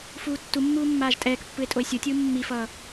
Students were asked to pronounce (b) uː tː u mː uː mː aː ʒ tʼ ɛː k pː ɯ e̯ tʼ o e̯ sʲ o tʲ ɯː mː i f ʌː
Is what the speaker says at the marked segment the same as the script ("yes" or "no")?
no